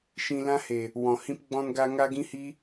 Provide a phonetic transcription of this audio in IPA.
ʃ ĩ˧ l ã˦ h e˨ | w ɔ̃˨ h ĩ˦ p ɡ͡b ɔ̃˦ n ɡ a˦ ŋ a˦ ɡ ĩ˦ h i˦

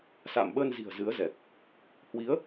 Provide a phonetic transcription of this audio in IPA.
s a̰ː˧˨ m ɓ əː˧ n z i̤˨˩ ə̯ z ɨ˨˦ ə̯ z ɛ˨˩ k̚ | h w i˨˦ ə̯

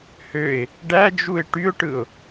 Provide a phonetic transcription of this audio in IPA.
h ø ɪ̯ | ɖ æ d͡ʒ u ɪ̯ ʈ y ʊ̯ ʈ ɯ ʊ̯

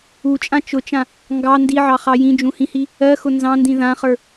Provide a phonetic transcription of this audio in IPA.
u t͡ʃʼ ã t͡ʃ ʊ t͡ʃ ã | ŋ ɡ ɑ n d i ʕ ɑ χ ɑ j ĩ d͡ʒ ũ h ĩ h i | ɜ x ʊ n z ɑ̃ n d ĩ ð ã χ ə˞

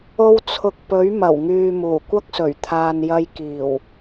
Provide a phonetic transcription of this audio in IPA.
o˧ w t͡sʰ ʊ˨ k̚ p ɵ˨˥ ɥ m ɐ˨˩ w ŋ yː˨ m uː˨˩ kʷ ɐ˥ k̚ s ɵ˨˩ ɥ t̪ʰ aː˨ n j ɐ˧ j k iː˨˩ w

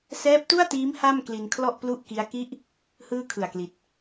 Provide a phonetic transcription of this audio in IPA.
s ɛː˦˥ p̚ t u˥˩ a̯ t iː˦˥ m h a˥˩ m k l i˧ n kʰ l ɔ˥˩ ʔ p l u˥˩ ʔ k i˦˥ a̯ k i˦˥ ʔ | h ɯː˥˩ kʰ ɯ˨˩ a̯ k l i˨˩ t̚

